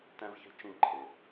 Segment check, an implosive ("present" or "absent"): absent